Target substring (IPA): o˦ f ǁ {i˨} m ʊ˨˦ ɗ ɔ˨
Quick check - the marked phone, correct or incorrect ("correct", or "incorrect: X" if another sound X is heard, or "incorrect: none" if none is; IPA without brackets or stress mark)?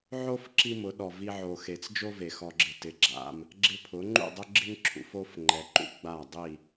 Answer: incorrect: i˦